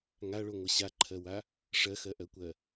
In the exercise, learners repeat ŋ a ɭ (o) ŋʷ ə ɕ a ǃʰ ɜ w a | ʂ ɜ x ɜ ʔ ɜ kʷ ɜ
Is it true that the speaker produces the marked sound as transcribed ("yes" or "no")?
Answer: yes